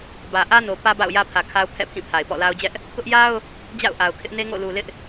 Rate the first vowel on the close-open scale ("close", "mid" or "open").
open